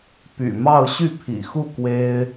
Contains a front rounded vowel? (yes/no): yes